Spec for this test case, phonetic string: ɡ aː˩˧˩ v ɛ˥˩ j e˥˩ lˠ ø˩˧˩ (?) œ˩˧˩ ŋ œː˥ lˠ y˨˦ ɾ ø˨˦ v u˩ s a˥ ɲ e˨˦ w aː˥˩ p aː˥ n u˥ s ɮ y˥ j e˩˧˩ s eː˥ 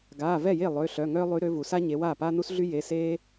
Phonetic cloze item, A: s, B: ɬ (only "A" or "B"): B